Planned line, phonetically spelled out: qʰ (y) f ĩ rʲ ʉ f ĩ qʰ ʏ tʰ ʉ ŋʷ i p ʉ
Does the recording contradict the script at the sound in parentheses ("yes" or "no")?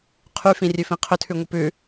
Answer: no